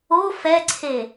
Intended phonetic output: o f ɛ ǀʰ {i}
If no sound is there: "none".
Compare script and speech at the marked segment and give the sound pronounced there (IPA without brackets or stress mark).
e